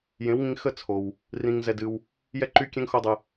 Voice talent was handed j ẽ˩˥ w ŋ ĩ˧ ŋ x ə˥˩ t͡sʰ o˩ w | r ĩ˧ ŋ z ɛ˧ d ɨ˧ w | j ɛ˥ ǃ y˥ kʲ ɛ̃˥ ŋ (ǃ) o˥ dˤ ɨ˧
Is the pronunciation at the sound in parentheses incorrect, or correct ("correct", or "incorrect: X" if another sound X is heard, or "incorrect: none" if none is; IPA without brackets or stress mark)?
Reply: incorrect: x